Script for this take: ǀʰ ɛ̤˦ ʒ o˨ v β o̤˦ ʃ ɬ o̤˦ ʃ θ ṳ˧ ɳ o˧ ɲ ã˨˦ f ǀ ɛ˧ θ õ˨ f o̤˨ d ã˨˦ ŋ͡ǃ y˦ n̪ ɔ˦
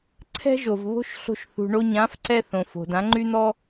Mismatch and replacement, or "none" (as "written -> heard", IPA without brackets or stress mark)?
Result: none